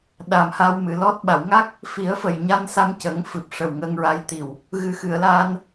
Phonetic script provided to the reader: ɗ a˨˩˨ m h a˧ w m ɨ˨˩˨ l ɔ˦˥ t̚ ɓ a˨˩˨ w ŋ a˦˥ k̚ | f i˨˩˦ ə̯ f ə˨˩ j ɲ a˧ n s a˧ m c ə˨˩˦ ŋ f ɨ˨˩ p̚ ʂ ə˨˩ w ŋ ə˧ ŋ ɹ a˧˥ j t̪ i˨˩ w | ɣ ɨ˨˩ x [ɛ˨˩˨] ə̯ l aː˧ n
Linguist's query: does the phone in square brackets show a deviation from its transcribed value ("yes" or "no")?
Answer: yes